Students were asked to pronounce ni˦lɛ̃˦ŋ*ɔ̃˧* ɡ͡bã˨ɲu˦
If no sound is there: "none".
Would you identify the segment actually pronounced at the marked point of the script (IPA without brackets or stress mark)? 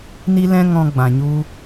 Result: ɔ̃˧